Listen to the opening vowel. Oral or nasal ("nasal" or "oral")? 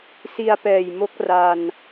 oral